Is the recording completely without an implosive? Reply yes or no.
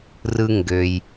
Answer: yes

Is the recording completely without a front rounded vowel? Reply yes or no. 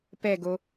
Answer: yes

